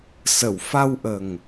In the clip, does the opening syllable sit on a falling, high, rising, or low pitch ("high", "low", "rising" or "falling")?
low